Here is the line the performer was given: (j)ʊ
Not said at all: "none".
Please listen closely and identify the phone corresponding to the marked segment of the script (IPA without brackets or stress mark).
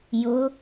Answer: j